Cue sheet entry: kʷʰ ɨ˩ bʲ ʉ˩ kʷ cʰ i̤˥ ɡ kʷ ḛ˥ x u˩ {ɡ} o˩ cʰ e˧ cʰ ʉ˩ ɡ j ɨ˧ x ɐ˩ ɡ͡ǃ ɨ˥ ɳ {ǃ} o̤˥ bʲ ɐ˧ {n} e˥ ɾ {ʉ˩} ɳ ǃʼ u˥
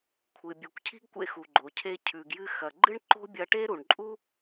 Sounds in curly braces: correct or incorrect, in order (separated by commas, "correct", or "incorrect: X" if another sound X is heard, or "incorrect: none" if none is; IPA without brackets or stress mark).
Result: incorrect: ɡ͡ǃ, correct, incorrect: ʈ, incorrect: u˩